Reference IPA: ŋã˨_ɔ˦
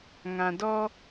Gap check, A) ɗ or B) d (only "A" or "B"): B